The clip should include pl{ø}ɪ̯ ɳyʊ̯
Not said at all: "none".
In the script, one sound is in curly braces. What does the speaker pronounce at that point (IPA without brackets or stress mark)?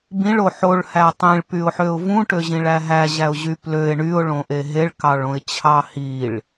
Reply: ø